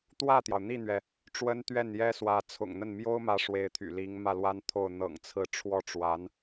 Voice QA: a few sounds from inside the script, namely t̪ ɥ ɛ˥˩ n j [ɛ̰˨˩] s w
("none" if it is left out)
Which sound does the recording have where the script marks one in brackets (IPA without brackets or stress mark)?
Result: ɛ˥